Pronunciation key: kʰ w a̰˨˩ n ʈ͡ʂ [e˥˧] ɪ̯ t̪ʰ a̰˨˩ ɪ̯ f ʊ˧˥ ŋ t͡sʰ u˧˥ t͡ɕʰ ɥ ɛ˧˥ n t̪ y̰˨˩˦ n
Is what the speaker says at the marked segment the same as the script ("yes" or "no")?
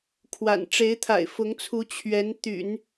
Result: no